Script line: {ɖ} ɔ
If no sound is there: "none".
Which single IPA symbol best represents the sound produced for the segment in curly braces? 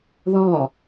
ð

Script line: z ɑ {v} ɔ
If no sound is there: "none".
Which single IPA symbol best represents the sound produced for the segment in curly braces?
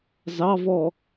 v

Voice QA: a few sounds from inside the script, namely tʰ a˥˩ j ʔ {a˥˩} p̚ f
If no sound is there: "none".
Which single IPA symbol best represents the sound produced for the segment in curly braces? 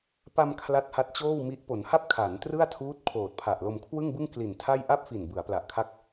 a˥˩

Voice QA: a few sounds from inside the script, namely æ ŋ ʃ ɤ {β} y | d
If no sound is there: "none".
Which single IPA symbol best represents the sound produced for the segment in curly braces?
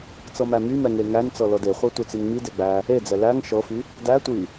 f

